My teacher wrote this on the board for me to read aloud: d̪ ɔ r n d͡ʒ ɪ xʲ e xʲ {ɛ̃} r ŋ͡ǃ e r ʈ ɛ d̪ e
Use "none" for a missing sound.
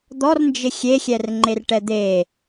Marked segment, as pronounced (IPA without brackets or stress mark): ɛ